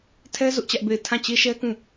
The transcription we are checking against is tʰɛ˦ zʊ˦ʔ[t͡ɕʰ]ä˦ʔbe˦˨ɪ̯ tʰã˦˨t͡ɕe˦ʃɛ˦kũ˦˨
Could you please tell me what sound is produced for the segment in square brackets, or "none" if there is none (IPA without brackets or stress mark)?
t͡ɕ